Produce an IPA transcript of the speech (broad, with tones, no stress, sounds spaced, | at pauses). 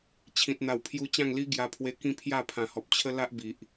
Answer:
t͡ɕʰ ĩ˨ t̚ n̪ a˨˩ w pʰ j u˧ t͡ɕ ã˥˧ ŋ l i˦ ɡ j a˧ pʰ w e˧ k ĩ˦ pʰ j a˥˧ pʰ ã˨˩ h ɔ˨ p̚ t͡ɕʰ ə˦ l a˦ ʔ b i˨ ʔ